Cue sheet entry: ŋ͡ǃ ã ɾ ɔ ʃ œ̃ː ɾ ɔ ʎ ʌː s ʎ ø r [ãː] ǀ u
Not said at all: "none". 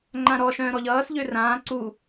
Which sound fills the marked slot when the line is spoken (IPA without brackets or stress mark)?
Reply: ãː